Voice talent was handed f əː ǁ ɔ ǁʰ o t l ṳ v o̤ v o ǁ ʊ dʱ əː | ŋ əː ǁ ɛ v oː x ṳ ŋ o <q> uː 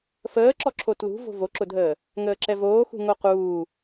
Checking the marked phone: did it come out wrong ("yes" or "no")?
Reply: no